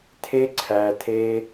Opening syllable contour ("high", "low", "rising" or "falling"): high